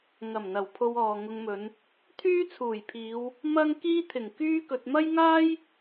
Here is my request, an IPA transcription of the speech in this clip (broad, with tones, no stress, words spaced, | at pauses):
ŋɐ˨˩mn̪ɐ˨˩wpʰo˧wɔː˨ ŋʊ˧ŋmɵ˨˧n | t̪ʰyː˥t͡sʰuː˨˩jpʰiː˨˧w | mɐ˥ŋ kiː˥t̪ʰɪ˨˩ŋkyː˥kɵ˧t̚ mɐ˥jŋaː˥j